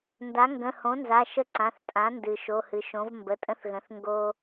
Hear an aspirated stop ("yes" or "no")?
no